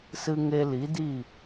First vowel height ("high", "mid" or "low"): high